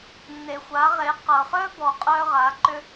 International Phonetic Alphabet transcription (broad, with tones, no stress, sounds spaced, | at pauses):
nː e˩ xʷ a˩˧ ʁ e˩˧ q ɤ˩ χ œ˥ b ɔ˩ qʼ œ˧ ʁ a˩˧ ǃ ʏ˧